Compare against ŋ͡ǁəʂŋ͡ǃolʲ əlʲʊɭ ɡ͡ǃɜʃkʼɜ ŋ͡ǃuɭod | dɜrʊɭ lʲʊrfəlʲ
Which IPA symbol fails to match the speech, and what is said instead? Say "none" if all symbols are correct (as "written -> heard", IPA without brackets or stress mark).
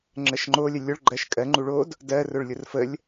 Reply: ʂ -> ʃ